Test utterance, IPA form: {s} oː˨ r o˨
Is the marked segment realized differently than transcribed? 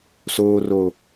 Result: no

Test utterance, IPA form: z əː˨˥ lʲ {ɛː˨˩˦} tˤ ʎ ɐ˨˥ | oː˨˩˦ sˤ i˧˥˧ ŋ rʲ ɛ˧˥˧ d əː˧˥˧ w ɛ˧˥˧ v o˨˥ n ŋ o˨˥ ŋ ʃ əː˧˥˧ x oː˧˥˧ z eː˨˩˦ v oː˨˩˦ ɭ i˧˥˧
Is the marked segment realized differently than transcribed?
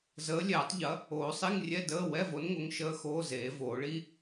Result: no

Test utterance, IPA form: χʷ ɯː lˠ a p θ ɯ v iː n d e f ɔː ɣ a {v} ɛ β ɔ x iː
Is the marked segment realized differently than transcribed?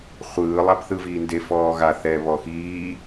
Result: yes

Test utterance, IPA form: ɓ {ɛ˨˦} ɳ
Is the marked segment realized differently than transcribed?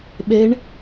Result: no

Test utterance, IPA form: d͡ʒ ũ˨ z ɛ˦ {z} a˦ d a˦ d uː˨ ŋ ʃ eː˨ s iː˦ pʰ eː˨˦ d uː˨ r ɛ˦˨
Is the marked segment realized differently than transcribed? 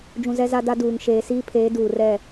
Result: no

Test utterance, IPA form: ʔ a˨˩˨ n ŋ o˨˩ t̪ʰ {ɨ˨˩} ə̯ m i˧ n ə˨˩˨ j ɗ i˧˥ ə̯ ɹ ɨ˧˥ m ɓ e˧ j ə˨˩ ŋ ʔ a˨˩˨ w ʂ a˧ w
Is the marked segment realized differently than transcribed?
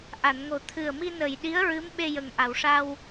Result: no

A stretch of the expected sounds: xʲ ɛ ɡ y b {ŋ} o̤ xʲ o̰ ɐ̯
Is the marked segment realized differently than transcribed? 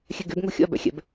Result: no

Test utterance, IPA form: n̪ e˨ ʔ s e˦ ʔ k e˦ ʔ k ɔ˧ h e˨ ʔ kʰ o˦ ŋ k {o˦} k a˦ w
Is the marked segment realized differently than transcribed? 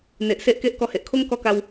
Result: yes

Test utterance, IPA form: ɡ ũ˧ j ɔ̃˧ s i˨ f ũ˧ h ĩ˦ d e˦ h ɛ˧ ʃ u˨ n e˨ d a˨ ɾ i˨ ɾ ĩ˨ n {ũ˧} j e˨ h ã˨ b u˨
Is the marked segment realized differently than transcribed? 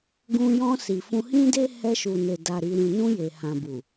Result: no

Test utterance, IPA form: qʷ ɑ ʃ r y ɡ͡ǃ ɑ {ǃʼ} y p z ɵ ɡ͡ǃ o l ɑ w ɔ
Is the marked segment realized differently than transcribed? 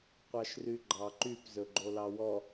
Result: yes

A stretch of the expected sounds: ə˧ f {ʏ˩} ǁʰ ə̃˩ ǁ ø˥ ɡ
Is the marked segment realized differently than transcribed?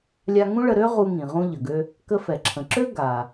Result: yes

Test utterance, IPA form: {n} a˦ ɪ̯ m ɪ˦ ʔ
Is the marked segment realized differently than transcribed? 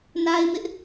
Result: no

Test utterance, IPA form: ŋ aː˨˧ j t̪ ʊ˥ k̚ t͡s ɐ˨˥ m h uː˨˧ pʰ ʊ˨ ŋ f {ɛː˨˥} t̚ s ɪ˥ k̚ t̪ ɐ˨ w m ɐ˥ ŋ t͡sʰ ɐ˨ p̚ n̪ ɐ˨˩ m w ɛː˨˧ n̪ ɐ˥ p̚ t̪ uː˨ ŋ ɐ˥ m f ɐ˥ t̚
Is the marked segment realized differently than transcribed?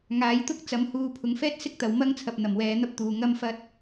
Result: yes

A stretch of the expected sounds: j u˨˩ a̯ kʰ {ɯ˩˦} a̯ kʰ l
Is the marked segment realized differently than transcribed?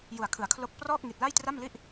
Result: no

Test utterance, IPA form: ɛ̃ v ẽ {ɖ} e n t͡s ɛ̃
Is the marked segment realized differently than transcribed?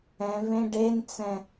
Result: no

